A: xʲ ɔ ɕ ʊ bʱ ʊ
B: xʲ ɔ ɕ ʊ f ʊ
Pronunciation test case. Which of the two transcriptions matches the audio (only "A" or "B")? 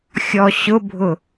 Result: A